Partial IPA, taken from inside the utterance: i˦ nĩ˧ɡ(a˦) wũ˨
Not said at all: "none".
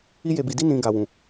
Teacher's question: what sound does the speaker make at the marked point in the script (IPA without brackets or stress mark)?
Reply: a˨